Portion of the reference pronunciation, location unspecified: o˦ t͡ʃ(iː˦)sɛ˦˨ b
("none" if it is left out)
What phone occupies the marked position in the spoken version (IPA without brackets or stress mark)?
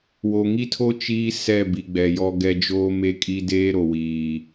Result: iː˦